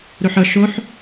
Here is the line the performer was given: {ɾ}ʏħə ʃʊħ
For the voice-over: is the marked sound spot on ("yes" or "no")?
yes